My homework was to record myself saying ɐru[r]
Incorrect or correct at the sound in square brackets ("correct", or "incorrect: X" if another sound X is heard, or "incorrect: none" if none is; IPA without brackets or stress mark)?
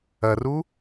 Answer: incorrect: none